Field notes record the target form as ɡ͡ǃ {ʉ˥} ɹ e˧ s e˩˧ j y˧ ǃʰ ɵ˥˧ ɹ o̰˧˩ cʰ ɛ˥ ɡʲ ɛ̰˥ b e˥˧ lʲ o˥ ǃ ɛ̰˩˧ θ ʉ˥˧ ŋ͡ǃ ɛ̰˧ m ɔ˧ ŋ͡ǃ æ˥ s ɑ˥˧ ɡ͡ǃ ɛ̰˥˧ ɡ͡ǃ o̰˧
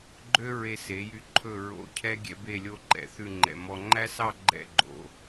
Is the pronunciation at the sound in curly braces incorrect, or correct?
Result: incorrect